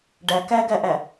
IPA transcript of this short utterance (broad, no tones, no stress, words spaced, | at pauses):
ɖæ kæɡæʔæ